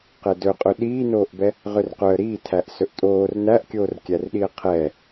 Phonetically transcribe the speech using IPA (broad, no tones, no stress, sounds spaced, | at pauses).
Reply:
q ɛ d ɵ qʼ ɵ ɗ iː n oː ʔ b ɛ | ʁ ø r q œ ə̯ ɾ iː tʰ æ ʔ s ɵ ʔ tʼ oː r n æ ʔ kʲ oː r kʲ æ r ɗ i ə̯ qʰ ɛː